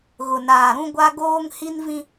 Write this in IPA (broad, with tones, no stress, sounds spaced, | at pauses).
ɣ ʊ˨ n aː˨ ɾ ũ˦ ɡʷ a˦ ɡ oː˦ ŋ h i˦ n v ĩ˦